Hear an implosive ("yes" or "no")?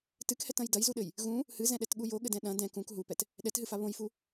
yes